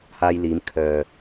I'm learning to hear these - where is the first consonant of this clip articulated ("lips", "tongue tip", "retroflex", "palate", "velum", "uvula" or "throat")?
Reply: throat